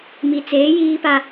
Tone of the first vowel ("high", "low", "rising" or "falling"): low